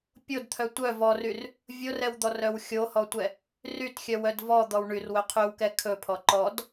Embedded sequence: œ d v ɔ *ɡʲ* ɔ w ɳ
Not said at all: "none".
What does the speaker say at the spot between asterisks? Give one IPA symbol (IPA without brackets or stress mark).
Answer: d̪